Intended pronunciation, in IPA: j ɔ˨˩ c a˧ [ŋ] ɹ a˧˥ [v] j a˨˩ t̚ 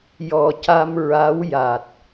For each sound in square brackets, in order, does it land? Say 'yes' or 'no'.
no, no

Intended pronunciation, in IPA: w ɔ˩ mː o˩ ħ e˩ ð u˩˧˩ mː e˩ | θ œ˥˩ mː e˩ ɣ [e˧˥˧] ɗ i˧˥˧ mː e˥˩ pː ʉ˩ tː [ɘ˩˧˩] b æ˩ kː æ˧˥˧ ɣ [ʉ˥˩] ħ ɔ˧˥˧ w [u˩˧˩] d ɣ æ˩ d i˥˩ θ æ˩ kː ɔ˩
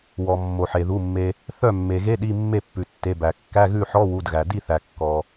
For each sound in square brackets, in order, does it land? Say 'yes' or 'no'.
yes, no, yes, yes

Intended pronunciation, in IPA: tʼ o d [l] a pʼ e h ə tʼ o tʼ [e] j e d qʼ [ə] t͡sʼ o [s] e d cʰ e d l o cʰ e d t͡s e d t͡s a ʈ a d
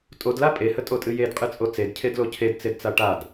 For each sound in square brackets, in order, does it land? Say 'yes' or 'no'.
yes, no, no, no

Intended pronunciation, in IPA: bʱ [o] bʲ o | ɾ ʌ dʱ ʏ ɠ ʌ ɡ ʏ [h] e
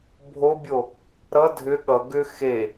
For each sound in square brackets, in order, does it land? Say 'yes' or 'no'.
yes, no

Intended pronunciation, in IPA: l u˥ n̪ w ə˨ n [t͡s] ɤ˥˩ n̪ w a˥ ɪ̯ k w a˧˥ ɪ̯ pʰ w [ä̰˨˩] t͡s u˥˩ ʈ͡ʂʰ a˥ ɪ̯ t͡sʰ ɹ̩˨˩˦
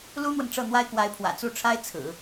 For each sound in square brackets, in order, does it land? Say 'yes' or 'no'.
no, yes

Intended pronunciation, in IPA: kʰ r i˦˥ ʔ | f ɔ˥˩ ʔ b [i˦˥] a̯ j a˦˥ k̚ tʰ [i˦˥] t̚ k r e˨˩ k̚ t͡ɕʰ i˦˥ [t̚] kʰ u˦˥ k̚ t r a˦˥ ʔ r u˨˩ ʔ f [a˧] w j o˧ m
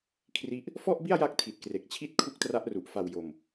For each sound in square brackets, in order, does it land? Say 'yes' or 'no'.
no, no, yes, no

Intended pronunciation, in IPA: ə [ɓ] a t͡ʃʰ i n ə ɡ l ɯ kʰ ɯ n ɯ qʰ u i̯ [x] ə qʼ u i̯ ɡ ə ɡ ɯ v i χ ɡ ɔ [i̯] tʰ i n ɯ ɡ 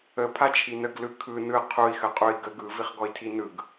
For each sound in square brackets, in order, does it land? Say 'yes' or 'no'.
no, yes, yes

